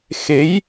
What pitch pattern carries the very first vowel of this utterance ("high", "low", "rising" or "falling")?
rising